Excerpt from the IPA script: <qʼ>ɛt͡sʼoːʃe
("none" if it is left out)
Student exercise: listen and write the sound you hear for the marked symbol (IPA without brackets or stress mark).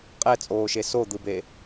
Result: qʼ